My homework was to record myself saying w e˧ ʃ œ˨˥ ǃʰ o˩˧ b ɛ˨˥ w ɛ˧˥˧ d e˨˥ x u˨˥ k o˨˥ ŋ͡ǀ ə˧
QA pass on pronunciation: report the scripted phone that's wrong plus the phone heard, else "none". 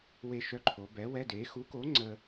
none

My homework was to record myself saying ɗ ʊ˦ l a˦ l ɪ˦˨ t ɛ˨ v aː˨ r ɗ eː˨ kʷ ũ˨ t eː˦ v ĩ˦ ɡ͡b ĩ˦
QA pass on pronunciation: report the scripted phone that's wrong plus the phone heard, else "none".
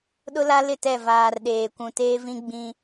ɛ˨ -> ɛ˦˨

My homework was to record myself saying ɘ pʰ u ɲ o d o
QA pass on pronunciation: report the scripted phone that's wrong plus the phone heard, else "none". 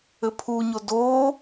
none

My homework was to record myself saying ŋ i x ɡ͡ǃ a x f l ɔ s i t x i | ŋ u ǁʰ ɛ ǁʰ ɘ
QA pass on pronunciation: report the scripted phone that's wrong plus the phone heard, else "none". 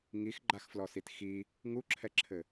none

